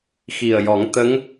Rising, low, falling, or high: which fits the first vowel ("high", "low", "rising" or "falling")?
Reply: low